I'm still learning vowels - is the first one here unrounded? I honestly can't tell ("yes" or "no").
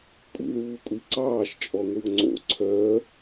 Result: yes